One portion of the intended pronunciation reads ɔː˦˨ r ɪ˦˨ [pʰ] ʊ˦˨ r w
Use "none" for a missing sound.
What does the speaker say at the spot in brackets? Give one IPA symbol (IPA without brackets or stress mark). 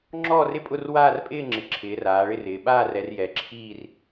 pʼ